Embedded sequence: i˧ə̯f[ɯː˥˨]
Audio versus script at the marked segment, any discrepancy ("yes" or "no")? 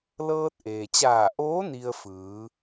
yes